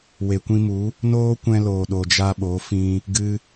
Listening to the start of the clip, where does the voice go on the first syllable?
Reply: low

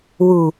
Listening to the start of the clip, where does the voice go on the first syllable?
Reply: low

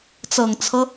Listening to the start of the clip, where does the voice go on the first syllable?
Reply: low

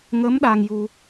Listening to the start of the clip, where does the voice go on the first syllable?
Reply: rising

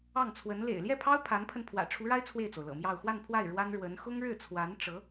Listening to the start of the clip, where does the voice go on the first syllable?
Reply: falling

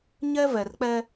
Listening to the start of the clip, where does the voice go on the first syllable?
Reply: high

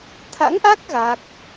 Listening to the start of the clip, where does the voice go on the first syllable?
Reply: rising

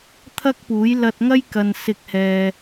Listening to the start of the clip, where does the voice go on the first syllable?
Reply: high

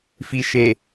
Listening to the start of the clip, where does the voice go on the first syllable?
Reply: low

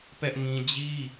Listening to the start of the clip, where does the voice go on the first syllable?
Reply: high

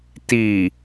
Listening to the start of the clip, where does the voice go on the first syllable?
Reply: low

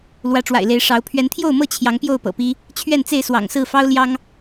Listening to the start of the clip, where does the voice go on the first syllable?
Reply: rising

